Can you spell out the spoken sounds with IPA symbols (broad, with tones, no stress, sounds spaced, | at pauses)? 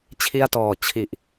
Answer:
t͡ɕʰ i˧ a̯ t ɔː˨˩ t͡ɕʰ i˨˩ ʔ